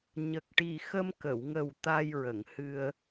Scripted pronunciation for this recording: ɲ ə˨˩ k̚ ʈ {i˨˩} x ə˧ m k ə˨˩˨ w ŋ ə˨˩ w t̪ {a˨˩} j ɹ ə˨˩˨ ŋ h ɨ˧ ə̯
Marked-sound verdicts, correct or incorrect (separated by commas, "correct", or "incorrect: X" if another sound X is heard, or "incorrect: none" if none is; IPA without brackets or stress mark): correct, incorrect: a˧